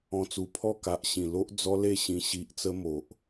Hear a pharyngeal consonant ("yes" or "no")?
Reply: no